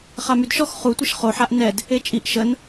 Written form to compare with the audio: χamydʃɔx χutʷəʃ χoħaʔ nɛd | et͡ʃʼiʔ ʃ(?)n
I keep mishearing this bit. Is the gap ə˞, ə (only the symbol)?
ə